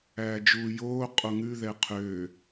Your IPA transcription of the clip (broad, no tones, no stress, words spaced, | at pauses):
æːd͡ʒuːjoː qʼoŋʉ ðɛqʰø